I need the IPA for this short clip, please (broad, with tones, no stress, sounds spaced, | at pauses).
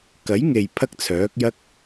k ɐ˨˥ j ŋ e˨ j pʰ ɐ˥ k̚ t͡sʰ œː˨˥ k̚ j ɐ˥ k̚